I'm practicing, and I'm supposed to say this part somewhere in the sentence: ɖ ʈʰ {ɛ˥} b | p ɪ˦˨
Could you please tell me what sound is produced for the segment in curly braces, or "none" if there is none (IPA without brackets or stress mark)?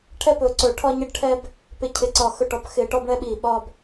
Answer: ɛ˥